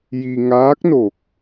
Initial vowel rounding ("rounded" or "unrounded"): unrounded